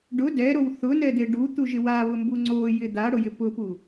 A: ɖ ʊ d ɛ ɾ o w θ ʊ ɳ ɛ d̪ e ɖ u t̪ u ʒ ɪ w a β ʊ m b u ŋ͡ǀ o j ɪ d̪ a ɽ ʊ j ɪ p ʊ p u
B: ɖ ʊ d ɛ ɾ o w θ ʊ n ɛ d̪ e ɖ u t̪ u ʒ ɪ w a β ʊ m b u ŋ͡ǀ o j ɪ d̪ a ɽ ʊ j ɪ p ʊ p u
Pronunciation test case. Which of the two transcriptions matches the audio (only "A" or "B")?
B